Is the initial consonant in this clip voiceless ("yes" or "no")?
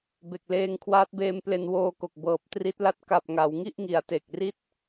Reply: no